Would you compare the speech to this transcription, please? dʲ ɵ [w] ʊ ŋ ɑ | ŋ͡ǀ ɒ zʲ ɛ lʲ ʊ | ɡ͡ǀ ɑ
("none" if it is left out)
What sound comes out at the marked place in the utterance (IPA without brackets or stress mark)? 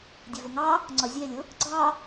v